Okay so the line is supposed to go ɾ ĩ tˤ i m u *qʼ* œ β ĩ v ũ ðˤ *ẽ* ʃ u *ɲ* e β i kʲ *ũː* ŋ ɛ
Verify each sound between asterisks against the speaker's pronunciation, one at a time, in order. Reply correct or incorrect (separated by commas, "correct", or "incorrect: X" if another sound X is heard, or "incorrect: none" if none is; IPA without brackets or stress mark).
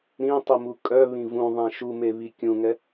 incorrect: kʼ, correct, incorrect: m, incorrect: ũ